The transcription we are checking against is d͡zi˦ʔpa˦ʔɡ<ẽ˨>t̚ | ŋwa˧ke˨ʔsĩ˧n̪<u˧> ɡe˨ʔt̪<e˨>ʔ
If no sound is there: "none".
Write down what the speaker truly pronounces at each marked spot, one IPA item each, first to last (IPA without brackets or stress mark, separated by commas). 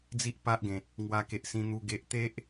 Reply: ẽ˨, u˧, e˦